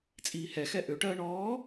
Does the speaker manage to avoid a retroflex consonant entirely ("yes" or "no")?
no